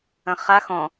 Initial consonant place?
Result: uvular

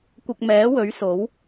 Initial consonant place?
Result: velar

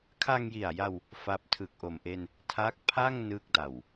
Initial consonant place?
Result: velar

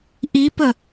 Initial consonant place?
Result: glottal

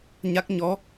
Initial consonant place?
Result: palatal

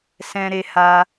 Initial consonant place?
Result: alveolar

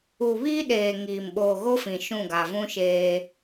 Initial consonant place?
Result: labial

